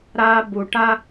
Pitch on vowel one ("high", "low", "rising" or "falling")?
high